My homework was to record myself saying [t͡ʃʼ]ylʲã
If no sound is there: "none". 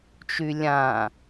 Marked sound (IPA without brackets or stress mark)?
t͡ʃ